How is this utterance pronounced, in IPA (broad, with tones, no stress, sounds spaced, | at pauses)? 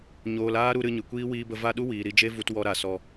ɲ oː˧ l aː˦ ɾ u˧ ɾ ɨ˧ ɲ ɨ˨ kʷ iː˦ w iː˧ b ə˧ v a˦˨ ɗ u˦ w iː˨ ɾ i˧ d͡ʒ e˦ v u˧ t w ɔ˧ ɾ a˨ s ɔ˧